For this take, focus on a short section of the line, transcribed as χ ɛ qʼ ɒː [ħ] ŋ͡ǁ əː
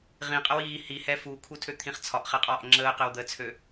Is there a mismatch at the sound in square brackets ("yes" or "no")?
yes